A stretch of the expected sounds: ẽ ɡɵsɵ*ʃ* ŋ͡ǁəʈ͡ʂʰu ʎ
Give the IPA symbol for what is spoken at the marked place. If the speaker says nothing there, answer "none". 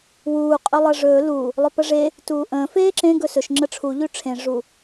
ʃ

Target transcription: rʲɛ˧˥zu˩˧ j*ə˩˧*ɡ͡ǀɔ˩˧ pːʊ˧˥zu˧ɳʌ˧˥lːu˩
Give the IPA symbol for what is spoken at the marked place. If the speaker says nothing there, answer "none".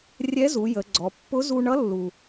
ə˩˧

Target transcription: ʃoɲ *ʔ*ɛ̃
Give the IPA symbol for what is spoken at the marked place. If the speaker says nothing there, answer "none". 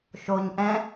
ʔ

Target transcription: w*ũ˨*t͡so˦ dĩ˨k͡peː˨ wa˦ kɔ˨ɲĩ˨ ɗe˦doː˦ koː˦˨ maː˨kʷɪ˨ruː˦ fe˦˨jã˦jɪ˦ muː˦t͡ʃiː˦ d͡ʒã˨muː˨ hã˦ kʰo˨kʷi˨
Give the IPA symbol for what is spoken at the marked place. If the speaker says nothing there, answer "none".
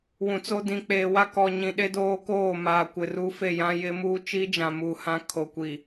ũ˨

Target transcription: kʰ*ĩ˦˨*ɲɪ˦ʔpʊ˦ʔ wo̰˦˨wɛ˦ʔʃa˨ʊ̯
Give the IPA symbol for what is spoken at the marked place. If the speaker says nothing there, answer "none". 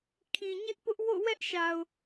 ĩ˨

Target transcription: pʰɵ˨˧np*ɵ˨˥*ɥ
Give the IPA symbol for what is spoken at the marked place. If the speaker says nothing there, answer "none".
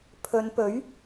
ɵ˨˥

